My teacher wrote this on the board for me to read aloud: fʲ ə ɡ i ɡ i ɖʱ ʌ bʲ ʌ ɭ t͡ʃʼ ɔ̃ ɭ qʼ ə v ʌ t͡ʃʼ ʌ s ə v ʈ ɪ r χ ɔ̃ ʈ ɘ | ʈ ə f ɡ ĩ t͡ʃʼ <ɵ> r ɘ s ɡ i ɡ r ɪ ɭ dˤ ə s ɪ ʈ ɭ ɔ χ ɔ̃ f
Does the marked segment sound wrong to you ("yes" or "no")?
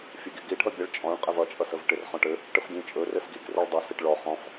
no